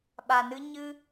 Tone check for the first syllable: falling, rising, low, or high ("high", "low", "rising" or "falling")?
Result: low